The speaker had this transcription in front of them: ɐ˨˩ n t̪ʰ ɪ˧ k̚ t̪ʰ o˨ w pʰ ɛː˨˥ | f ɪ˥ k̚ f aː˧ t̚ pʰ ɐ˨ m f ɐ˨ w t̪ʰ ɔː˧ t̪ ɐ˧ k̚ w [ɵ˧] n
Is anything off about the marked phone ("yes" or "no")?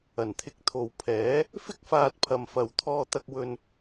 no